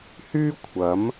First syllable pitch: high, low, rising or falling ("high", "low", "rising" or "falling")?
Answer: high